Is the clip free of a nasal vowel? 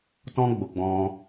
no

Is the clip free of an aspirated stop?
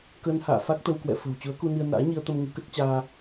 yes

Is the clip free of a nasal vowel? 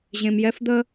no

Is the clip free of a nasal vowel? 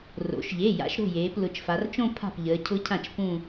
no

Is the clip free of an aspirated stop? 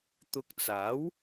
yes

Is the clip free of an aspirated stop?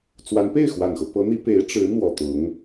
yes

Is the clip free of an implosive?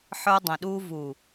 no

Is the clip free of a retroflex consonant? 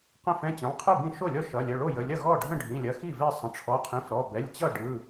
no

